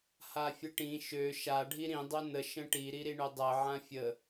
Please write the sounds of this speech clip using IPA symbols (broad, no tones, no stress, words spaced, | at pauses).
hafʲəʈĩ ʃø ʃa ɖʱiɾĩ dˤønə ʃə̃ʈi ɾiɾiɳødˤɜ ʕãfʲə